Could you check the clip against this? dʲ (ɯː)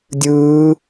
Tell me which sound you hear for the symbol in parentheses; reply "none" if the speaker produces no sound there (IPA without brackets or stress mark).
ɯː